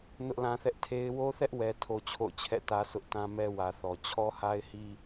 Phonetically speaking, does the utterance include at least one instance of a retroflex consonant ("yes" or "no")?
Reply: no